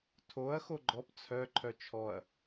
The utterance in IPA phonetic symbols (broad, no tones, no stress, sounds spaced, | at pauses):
tʰ o ɐ̯ x o ɡ͡ǃ ɔ p t͡sʰ œ ǃʰ œ t͡ʃʰ ɔ ɐ̯